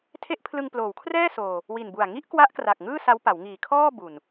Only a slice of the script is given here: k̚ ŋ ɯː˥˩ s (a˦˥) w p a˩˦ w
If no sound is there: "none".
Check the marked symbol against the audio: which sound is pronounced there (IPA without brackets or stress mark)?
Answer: a˦˥